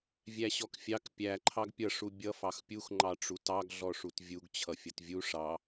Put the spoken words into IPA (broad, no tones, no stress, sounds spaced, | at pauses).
vʲ æ ɕ ɔ k fʲ ɑ k pʲ æ ǃʰ ɑ ɡ pʲ ʌ ʂ u bʲ ʌ f ɑ x pʲ u x ŋ͡ǃ ɑ ʈ͡ʂ u t ɑ ɡ ɮ ɔ ʂ u t vʲ u ɡ t͡ɕʰ ʌ fʲ ʌ t vʲ u ʂ ɑ